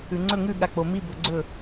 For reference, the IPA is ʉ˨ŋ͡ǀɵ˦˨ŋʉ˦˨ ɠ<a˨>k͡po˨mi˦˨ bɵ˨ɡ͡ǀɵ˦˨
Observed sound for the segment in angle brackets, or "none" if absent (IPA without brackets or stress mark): a˨